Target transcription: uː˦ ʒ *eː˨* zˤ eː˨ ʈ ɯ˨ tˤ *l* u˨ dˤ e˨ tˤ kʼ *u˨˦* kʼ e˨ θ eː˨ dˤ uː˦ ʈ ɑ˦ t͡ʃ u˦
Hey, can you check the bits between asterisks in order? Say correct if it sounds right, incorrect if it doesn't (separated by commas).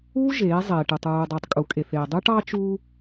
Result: incorrect, incorrect, incorrect